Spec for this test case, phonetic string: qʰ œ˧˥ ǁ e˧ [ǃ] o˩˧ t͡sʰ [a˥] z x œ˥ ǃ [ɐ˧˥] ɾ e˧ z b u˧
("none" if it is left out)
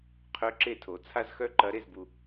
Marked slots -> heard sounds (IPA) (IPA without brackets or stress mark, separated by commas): tʰ, a˥, ɐ˧˥